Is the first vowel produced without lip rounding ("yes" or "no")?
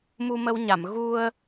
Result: no